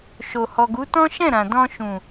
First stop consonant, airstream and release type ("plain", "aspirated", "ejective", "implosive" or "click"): plain